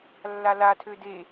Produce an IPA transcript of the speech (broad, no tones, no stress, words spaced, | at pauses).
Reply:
lːalatʰø de